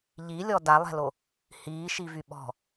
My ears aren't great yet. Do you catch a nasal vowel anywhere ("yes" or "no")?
no